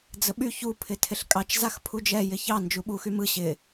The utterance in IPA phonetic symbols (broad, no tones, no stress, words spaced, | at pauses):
d͡zəɓy çu pʰɪtʰɪɬkʼɑt͡ʃ zaxpʰud͡ʒɛ jɪçɑ nd͡ʒuɓuxymɯ ɕɪ